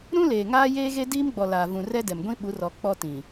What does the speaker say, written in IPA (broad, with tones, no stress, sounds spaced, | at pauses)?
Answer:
ɾ ũ˦ l eː˨ ŋ aː˦ j eː˦ ɣ e˦ d iː˦ m ɡ͡b ɔ˨ l aː˨ v ũ˨ r ɛ˦ d ɛ˨ m ɡʷ ĩ˦ ɓ u˨˦ r ɔ˨ k͡p ɔ˦ t ĩ˨